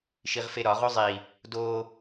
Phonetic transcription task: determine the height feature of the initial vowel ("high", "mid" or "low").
high